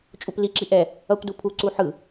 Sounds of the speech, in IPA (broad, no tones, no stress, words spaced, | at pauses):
t͡ʃʼupliǁi ʔɛ | ʌkʷdu pʰuǀu ħɯ